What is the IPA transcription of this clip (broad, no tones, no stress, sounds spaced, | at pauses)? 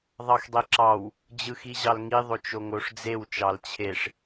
ðˤ ɑ x dˤ e ǁ ɑ w | d͡ʑ ɯ x i ʑ ɑ l ŋ i ðˤ o t͡ʃ o ŋ o ʂ d͡z e w t͡ʃ ɑ l t͡ɕʰ e ʂ